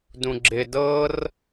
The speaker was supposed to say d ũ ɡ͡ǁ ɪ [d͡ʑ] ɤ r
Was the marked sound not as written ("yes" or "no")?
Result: yes